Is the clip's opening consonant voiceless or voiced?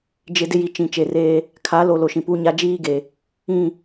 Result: voiced